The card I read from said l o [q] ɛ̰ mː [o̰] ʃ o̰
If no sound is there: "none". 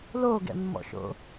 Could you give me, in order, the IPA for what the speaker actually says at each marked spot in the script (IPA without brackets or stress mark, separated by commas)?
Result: ɡ, ɔ̰